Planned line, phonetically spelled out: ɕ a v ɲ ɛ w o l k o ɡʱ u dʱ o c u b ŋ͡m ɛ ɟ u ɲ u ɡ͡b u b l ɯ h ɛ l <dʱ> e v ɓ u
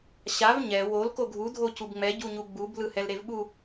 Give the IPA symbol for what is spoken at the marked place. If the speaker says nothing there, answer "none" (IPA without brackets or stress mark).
ɾ